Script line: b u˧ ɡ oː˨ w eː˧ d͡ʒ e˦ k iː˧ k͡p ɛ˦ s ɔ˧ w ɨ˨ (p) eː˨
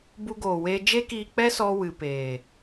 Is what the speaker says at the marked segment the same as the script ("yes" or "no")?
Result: yes